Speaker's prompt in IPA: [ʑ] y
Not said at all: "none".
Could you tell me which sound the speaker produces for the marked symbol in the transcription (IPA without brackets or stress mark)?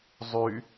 zˤ